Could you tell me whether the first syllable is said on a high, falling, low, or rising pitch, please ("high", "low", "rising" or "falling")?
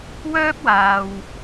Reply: high